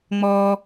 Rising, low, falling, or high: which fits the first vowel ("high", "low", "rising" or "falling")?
high